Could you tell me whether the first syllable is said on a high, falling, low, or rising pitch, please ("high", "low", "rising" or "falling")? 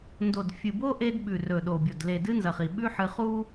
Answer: low